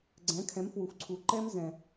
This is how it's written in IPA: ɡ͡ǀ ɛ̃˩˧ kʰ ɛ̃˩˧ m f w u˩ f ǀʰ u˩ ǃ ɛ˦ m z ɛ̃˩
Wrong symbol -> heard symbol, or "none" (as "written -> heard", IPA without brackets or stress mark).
none